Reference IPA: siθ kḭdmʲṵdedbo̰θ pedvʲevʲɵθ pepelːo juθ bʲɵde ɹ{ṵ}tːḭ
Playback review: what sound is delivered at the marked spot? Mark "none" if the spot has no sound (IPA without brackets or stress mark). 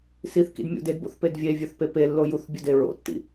o̰